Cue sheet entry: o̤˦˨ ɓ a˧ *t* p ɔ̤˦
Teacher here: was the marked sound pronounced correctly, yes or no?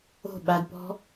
no